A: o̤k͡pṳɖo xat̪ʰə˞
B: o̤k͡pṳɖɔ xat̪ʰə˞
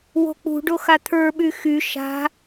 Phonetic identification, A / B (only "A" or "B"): A